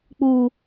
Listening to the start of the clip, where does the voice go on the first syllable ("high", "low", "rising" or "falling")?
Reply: low